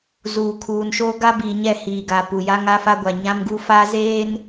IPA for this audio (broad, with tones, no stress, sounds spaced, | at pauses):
z uː˨ kʰ uː˨ n ʃ oː˦ ɡ a˦ b iː˨ ɲ ɛ˦˨ h iː˨ ɡ a˨ p u˨ j a˦ ŋ a˦ f a˦ ɡʷ a˨ ɲ ã˦ m ɡ u˦ f aː˦ z eː˦ n